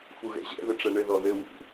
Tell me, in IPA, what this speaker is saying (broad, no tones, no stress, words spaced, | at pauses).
fuɣɛ̰ʑɛ̰ ðɘʈ͡ʂɛɳɘ ðɔðɘ wṵ